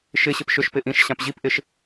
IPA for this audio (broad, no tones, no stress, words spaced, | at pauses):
ʃɪ ɕɪpʃʏʃpɪ ʔĩʃɕãp ʑipʔɪʃ